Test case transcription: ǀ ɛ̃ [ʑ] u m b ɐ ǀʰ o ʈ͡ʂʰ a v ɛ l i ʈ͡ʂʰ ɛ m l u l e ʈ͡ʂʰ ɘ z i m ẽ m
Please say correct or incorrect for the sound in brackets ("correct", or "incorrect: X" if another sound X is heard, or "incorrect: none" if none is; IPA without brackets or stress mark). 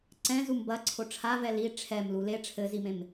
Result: incorrect: z